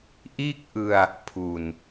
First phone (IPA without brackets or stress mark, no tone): ʔ